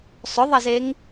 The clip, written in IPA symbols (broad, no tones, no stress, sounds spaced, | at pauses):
sˤ ʊ ðˤ ɐ z e ŋ